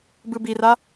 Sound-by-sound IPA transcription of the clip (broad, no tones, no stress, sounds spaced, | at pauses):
b ɯ b i r a